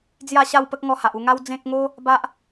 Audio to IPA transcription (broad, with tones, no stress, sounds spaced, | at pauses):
d͡z j a˥˧ ɕ a˥˧ w p ə˦ k̚ ŋ ɔ˧ h a˨ ʔ u˥˧ ŋ a˦ w d͡z ẽ˦ k̚ ŋ o˦ | b a˦ ʔ